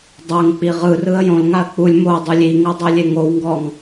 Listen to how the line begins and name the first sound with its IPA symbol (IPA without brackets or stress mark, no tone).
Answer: dˤ